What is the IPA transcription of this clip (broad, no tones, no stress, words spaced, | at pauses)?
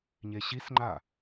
ɲeɕisŋ͡ǃa